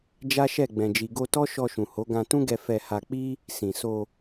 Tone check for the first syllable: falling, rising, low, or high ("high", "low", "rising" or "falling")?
high